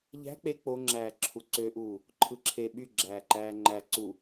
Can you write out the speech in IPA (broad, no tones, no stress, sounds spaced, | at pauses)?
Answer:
ʎ æ̤ k͡p e k͡p o ŋ͡ǁ æː ǁʰ u ǀ ø ʔ uː | ǃʰ ɯ ǁʰ e ɓ y ɡ͡ǁ æː ǃ æː ŋ͡ǃ æ ǀ u